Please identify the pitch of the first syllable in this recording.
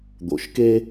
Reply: low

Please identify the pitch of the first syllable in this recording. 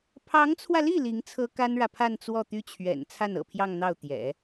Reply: rising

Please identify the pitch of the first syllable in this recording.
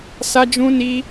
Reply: high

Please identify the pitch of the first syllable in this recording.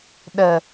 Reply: low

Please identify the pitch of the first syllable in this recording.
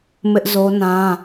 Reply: high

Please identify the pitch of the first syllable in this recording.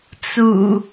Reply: low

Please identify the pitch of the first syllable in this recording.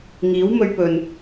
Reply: rising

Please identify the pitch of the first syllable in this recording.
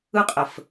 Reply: high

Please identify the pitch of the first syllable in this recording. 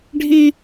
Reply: high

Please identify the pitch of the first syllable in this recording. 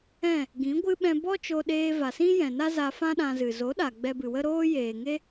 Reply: falling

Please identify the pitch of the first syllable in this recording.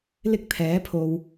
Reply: high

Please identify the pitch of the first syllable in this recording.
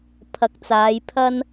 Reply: rising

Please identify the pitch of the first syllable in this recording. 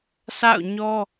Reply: falling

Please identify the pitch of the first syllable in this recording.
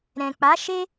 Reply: low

